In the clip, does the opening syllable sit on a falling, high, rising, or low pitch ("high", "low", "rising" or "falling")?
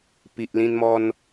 low